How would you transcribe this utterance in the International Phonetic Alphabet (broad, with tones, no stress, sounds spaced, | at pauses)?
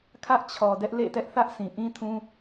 kʰ ä˦ ʔ t͡ɕʰ ɔ˨ d ɛ˦ ʔ l ḛ˦˨ t ɛ˦ ʔ θ ä˦ ʔ sʰ ĩ˨ ʔ ĩ˦ tʰ ũ˦